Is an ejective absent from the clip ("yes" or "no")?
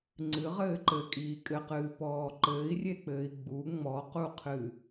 no